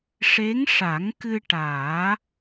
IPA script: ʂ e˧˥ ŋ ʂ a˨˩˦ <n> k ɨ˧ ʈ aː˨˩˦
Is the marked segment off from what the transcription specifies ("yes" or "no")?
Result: yes